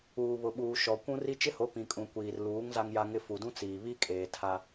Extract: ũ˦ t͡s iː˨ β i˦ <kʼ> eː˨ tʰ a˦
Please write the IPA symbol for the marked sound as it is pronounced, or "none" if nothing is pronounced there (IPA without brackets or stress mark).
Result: kʼ